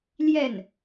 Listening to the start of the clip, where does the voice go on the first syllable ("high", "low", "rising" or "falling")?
falling